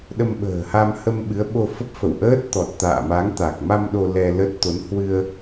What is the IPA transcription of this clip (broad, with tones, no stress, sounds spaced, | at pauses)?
ɗ ə˧ m ɓ ə̤ː˨˩ h a˧ m h ə˧ m ɓ ɨ˨˦ ə̯ ɓ o˧ f ə˦˥ p̚ f ə̰˧˨ w ʔ əː˦˥ t̚ t̪ ɔ˨˩ t̚ t̪ a̰ː˧˨ m a˨˦ ŋ t̪ a˨˩ k̚ m a˧ m ɗ o˧ l ɛ˧ l ə˦˥ t̚ t̪ o˨˦ n h w ɨ˧ ə̯